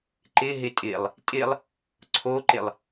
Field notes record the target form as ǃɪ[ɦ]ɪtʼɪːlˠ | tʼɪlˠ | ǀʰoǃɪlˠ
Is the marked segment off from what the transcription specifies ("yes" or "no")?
no